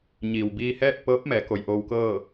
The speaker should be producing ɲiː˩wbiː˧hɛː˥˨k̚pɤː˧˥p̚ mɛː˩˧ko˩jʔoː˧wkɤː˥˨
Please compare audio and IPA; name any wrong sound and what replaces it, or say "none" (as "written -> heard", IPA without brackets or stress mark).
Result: none